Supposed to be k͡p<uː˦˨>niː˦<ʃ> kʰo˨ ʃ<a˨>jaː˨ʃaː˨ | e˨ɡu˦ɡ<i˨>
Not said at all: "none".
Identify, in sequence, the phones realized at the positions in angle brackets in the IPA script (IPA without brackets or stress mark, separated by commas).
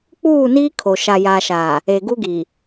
uː˦˨, none, a˨, i˨